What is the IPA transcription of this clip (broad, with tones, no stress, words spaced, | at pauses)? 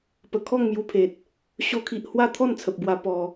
pə˨˩kʰɔ˥˧ŋmju˧pʰe˨t̚ | ɕo˧kʰi˨ʔhwa˥˧ t̪ʰɔ˥˧nt͡sʰə˨p̚bwa˧ pɔ˧